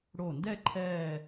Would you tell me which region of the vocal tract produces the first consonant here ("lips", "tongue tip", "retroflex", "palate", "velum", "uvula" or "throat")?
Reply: retroflex